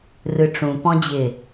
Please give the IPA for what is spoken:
r ɯ ʈ͡ʂ ũ p ɔ̃ d͡ʑ ɪ

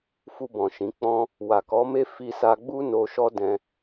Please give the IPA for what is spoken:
f u˧ b ɔ̃˨ ʃ ĩ˨˦ k͡p ɔ̃˦ | w a˨ k ɔ˨˦ m e˦ f i˧ s a˧ ɡ͡b u˦ n o˧ ʃ ɔ˦ d ɛ̃˧

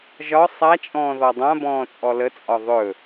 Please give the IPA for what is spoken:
ʒ ɒ sˤ a t͡ʃʼ ɔ̃ː ð ɔ dˤ ã b ɔ̃ː t͡sʼ ɔ l ə t͡sʼ ɒ ðˤ ɵ

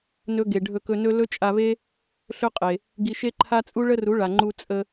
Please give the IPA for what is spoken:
n ɵ˦ ɡ e˨ ɖʱ ɵ˧ k ɵ˧ n ɵ˦ l ɵ˦ t͡ʃʼ a˧ v e˦ | ɬ ɵ˦ qʼ e˨ | ɡ i˧ ʃ e˦ ǃʰ a˦ t͡sʼ u˦ ɭ ə˦ r u˨˦ ɭ a˨ ŋ͡ǃ u˧ t͡sʼ ə˧

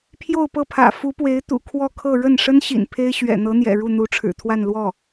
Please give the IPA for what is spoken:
pʰ j o˥˧ ʊ̯ p ɤ˥˩ pʰ ä̰˨˩ f u˧˥ p w e˧˥ ɪ̯ t̪ ṵ˨˩ kʰ w ɔ˥˧ kʰ ɤ˥˧ ɻ ə˥˩ n ʂ ə˥ n ɕ ḭ˨˩ n pʰ e˥ ɪ̯ ɕ ɥ ɛ̰˨˩ n̪ ɤ˧˥ n̪ j ɛ̰˨˩ ɻ u˥˩ n̪ u˧˥ ʈ͡ʂʰ ɻ̩˨˩ t̪ʰ w a˥˧ n l w ɔ˥˩

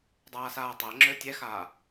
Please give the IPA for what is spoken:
dˤ aː s aː tˤ æ ŋ͡ǁ ø tʲ ɛ x aː

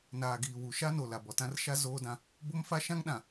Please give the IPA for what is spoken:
n aː˨ ɡ iː˨ w u˨ ʃ a˦ n o˨ l a˨ b ɔ˨ t ã˦ r ʃ a˦ z oː˦ d ã˦ | b o˦ m f a˦ ʃ ã˦ ŋ ɗ ã˨

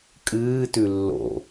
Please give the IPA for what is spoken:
kʼ ɨː t ʉ lː o̰

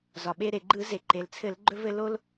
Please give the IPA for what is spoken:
z ɒ˩ ɓ e˧ ɾ e˩ ɡ͡ǃ ɯ˧˩˧ z e˩ ǃ e˩ l t͡sʰ ɘ˧˩˧ l ɡ͡ǃ ɵ˧ v ɘ˧ l o˧ l

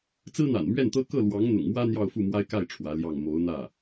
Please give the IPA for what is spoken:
t͡s ɹ̩˥ n̪ a̰˨˩ n m ɥ ɛ˥˩ n t̪ ɤ˥ k ɤ˥˩ l w ɑ˧˥ ŋ n̪ ʊ̰˨˩ ŋ m w ä˥ n̪ j ɑ˥˧ ʊ̯ f u˥˩ m w a˥ ɪ̯ k a˥˩ ɪ̯ ʈ͡ʂʰ w ä˧˥ l j ɑ˥˩ ŋ m o˧˥ ʊ̯ n̪ ä˥˩

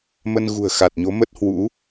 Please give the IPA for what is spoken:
m ə˧ n ɣ ṳ˨˩ ə̯ x a˨˩ t̚ ɲ o˨˦ m ə˦˥ t̚ h w ṵ˧˥

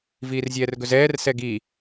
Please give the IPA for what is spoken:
v iː r zʲ ɛː r ɡ ɵ z ɛː r s ɛ ɡ i

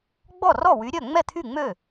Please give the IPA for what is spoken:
ɡ͡b ɔ˥˩ r ɔ˥˩ w y˨˦ ɾʲ œ˥˩ ŋ͡m ɛ˥˩ t̪ʰ y˥˩ ŋ͡m ø˥˩

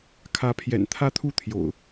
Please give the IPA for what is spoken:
kʰ ä˨˦ pʰ j ɛ̰˨˩ n t̪ʰ ä˦ t̪ʰ u˥˨ t̪ʰ j o̰˨˩ ʊ̯

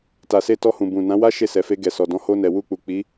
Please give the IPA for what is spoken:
t a˨ s e˧ t ɔ˧ h ũ˨ b ũ˨ n ã˨˦ w a˦ ʃ e˦˨ s ɛ˨ f e˧ ɡ ɛ˨ s ɔ˨ d ɔ̃˨˦ h o˧ n ɛ˨ w u˧ k͡p u˨ k͡p i˨˦

